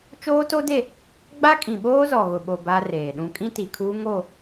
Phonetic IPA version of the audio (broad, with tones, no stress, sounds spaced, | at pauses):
t͡ʃ oː˦ t o˦ d e˦˨ | ɡ͡b a˦ kʼ ĩ˨ ɓ oː˦ z ɔ˨ ɣ ʊ˨ ɓ o˨ b a˦ r eː˨ ɗ ũ˦ kʼ ĩ˦ t i˨ kʰ uː˦ ŋ o˦˨